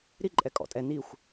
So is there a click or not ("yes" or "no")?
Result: yes